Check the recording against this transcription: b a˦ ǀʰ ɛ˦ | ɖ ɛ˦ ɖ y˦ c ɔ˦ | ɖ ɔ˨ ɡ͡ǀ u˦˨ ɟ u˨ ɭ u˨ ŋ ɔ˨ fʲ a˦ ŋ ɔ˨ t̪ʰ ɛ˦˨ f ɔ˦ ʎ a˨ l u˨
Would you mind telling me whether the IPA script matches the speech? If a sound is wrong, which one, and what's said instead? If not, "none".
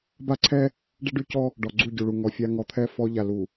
none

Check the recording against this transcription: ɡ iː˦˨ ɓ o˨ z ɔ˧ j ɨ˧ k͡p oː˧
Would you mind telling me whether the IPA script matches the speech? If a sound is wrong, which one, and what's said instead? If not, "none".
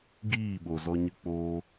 j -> ɲ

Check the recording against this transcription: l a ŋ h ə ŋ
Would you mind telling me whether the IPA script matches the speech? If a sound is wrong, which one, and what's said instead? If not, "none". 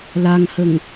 none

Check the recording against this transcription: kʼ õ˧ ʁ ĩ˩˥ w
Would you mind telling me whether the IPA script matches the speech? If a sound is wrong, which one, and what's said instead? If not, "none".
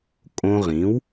none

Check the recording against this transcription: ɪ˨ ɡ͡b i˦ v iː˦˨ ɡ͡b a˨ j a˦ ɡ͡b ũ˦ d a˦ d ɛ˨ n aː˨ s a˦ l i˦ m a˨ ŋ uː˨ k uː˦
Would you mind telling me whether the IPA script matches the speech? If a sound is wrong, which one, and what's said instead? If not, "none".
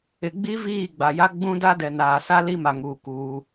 none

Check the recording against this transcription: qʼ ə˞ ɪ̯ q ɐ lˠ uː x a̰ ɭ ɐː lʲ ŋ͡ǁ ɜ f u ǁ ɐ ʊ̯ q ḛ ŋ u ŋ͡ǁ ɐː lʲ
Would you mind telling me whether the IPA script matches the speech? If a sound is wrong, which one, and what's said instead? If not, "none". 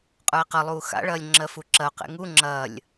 none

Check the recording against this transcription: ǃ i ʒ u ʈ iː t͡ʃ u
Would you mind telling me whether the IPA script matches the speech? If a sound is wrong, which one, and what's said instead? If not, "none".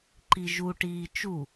none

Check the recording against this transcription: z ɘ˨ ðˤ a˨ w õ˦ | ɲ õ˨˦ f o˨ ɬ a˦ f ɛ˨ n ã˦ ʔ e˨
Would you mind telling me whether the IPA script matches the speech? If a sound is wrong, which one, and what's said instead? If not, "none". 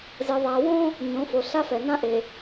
none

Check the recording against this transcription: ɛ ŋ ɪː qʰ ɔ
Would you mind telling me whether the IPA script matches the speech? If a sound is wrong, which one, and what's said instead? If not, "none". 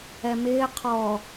ŋ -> m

